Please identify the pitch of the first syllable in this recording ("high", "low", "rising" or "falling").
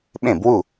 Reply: falling